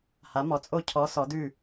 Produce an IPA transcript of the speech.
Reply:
ha˨˥mɔ˨˥t͡sʼo˥˩ cʰɔ˨˥ sɔ˨˥dʉ˥˩

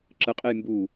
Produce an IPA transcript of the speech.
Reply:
ǁəqʼej mbu

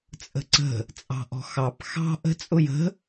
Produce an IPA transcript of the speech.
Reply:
t͡sʼə̤ǀə̤ | t͡sʼɑ̤ʔɔ̤xɑp xɑ̤ ʔə̤t͡sʼʊj ə̤

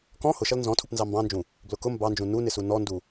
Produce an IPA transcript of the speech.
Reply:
kɔ̃ hʊʃʌl nzɔ̃ tʰupnzɑmbɑ̃nd͡ʒũ | blʊkʊ mbɑnd͡ʒũ nunɪsu nɔndu

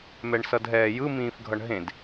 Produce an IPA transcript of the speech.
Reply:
mɛɳsʌdɦɛːjɯ mĩːfɡʱʌɳɦẽd

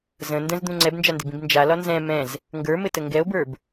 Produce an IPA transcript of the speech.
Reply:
zə̃ ndə̃zd̪ũ ŋ͡ǀɛbnd͡ʒandɘbĩb nd͡ʒalɒ nzɛ̃ mɛ̃z | ŋɡə˞mɘtə ŋɡɛo̯bə˞b

